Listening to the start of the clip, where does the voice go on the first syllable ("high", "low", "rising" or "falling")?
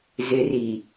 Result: low